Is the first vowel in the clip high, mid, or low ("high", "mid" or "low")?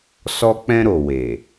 mid